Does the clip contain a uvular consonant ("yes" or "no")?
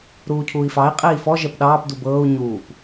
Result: yes